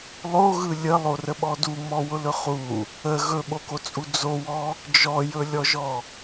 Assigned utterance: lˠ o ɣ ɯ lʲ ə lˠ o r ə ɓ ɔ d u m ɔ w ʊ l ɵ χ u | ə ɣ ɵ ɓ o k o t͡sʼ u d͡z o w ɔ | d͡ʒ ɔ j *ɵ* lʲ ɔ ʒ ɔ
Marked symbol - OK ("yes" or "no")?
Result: yes